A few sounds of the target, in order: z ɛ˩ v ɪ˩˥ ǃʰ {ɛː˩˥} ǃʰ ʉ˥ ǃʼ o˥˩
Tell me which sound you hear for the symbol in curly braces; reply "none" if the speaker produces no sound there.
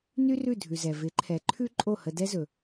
ɛ˩˥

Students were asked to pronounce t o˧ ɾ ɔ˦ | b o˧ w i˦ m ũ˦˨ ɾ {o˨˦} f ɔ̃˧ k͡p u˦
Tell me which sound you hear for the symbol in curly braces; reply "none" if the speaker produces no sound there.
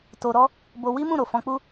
o˨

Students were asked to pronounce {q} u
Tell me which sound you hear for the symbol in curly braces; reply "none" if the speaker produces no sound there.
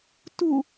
t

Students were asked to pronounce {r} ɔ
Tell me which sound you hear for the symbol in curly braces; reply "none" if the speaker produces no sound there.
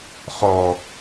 χ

